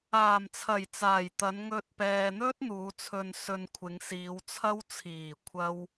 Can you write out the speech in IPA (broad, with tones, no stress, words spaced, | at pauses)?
aː˨˩mt͡sʰɐ˨˩jt͡saː˨˩j t̪ɐ˨˧nŋɵ˧t̚ pɛː˨n̪ɵ˥t̚ n̪uː˨˧t͡sʰɵ˧n sɵ˧nkʷʰɪ˨˧ŋ siː˨˧wt͡sʰɐ˥wt͡sʰiː˨˩ kʷʰɐ˥w